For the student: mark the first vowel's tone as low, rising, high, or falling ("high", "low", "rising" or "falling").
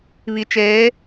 low